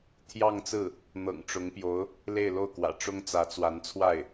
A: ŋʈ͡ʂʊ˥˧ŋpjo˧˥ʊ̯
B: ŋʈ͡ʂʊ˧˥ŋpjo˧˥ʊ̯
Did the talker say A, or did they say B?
B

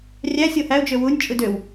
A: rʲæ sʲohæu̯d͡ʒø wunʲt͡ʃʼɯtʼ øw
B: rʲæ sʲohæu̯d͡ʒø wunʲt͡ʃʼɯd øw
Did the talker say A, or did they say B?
B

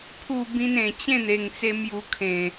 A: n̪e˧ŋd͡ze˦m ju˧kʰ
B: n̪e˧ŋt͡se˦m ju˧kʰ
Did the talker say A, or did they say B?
B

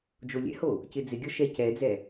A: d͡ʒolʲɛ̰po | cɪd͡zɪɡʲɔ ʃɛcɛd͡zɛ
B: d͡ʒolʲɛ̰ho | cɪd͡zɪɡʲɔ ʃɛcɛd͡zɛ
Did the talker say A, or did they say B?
B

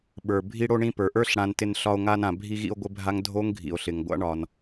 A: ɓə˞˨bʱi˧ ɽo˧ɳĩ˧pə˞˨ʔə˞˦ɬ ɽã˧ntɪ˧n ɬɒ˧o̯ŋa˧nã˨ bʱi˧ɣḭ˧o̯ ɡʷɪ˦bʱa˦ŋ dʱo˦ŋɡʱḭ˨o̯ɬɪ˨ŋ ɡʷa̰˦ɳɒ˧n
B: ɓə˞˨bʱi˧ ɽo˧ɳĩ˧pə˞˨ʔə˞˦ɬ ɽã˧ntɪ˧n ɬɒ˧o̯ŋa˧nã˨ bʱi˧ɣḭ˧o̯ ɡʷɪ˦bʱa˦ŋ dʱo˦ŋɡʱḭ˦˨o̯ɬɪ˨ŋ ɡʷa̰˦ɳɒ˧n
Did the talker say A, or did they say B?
A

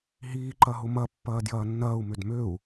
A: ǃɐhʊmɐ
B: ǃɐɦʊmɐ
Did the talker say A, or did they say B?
B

